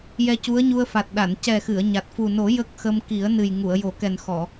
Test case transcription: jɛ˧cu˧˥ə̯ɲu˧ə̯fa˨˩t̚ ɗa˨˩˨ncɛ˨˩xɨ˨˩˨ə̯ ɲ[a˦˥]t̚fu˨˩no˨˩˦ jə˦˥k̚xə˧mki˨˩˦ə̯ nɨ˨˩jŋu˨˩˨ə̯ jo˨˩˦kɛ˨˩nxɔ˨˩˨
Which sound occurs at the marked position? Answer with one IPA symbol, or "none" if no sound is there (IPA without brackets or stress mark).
a˨˩